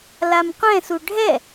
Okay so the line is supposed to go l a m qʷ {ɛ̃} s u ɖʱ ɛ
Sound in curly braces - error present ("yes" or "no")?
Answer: no